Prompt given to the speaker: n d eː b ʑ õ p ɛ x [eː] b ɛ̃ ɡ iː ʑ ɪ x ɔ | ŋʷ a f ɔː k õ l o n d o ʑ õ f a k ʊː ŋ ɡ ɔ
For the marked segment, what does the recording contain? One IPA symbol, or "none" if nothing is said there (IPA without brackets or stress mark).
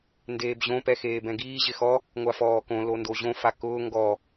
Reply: eː